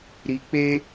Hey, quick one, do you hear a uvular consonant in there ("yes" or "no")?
no